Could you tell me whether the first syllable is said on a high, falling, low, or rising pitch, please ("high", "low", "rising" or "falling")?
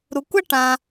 low